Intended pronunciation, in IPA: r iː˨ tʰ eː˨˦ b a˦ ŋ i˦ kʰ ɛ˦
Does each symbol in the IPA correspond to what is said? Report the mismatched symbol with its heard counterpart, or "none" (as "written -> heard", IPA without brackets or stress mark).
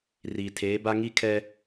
none